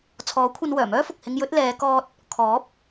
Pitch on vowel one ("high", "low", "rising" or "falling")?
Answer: rising